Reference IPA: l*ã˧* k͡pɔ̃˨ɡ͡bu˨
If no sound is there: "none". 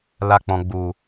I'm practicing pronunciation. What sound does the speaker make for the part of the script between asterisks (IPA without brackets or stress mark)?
a˧